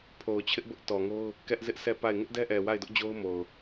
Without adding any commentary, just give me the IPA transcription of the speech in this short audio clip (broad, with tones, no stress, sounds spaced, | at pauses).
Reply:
pʰ o˨ ʊ̯ t͡ɕʰ ɪ˦ ʔ b ʊ˦ ʔ t ɔ˨ ŋ o˦ ʊ̯ | k ɛ˦ ʔ z ɪ˦ ʔ s ɛ˦˨ p a˦˨ ɪ̯ ŋ ɪ˦ ʔ d ɛ˦ ʔ ɛ˨ w a˦˨ ɪ̯ d ʊ˦ ʔ d͡ʑ o˦ ʊ̯ m o˨ ʊ̯